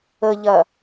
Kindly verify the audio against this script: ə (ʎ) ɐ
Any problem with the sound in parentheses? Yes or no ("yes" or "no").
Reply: no